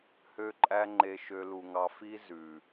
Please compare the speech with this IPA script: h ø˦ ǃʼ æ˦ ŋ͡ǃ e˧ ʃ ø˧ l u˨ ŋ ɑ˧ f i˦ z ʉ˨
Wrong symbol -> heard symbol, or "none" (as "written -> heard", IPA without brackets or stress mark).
none